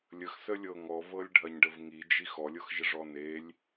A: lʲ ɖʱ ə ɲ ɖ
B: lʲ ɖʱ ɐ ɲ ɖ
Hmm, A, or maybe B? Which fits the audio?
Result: B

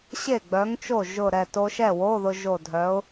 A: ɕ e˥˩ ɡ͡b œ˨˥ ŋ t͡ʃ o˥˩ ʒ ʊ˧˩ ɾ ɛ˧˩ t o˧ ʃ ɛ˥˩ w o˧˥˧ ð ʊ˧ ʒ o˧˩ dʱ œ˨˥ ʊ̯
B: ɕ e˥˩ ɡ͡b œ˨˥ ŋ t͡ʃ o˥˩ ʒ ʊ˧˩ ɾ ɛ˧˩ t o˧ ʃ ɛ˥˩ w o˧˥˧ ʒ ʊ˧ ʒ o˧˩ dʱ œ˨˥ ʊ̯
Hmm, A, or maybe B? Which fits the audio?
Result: A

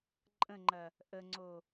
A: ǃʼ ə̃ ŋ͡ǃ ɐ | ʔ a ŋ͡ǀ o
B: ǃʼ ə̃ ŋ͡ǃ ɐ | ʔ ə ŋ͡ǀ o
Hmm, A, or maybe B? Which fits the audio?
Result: B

